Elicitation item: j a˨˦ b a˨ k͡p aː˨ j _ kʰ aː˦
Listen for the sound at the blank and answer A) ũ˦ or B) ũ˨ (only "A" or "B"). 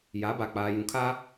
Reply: B